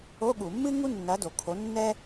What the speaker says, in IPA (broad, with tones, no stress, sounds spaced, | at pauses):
o˧˥˧ ɠ u˧˩˧ mː ɨ˥ ŋ u˥ nː ɐ˨˥ d o˩˧ kʰ o˨˥ nː ɛ˥